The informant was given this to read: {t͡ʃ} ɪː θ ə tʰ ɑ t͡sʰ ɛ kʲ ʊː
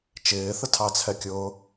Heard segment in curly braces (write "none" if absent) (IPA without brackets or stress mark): t͡ʃ